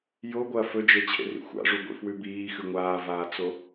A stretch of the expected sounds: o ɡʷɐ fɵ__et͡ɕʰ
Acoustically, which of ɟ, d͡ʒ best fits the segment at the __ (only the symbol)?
d͡ʒ